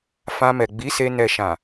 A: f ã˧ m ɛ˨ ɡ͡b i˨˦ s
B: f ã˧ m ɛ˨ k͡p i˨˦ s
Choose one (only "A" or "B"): A